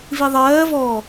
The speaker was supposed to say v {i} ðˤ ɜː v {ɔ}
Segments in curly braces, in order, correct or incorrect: correct, correct

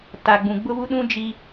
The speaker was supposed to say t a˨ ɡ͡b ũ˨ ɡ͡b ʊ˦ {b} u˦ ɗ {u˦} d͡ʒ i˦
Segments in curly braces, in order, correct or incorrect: incorrect: β, incorrect: ũ˦

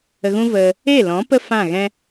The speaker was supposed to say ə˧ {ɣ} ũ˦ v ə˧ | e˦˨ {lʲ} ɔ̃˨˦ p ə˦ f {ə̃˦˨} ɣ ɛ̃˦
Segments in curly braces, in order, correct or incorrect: correct, incorrect: l, incorrect: ã˦˨

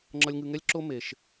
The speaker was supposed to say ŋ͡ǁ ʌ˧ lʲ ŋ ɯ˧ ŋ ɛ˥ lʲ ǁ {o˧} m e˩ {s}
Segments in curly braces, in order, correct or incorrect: incorrect: o˥, incorrect: ʃ

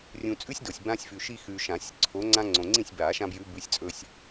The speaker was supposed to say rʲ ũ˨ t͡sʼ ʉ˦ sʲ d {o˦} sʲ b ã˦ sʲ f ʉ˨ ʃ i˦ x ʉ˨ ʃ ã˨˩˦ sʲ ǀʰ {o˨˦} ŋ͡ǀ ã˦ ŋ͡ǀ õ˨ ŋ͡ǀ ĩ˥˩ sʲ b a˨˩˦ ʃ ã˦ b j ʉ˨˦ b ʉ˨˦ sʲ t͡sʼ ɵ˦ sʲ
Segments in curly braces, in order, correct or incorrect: incorrect: o˨, correct

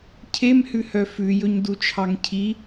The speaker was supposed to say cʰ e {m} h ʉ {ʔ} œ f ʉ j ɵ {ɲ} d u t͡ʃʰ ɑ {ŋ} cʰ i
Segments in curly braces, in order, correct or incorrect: correct, incorrect: h, correct, correct

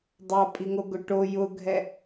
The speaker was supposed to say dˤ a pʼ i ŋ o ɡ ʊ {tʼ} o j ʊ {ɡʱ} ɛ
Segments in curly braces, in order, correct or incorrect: incorrect: ʈ, correct

